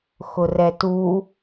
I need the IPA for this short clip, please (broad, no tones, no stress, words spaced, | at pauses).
xʊrɛtu